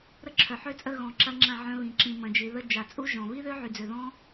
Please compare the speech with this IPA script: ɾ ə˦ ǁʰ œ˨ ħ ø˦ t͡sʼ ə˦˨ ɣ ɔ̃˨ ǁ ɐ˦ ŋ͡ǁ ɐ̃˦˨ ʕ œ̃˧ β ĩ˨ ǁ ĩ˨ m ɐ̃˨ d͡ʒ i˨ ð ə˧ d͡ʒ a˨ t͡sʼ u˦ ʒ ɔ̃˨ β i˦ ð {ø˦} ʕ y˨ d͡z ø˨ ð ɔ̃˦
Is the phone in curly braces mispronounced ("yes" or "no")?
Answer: no